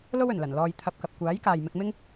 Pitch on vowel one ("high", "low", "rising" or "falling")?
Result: high